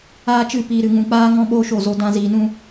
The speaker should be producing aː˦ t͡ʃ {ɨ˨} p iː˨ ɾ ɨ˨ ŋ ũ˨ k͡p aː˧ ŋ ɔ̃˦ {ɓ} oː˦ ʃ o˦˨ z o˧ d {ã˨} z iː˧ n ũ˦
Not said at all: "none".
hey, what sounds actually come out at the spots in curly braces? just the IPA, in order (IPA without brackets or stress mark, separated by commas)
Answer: ɨ˦˨, ɓ, ã˦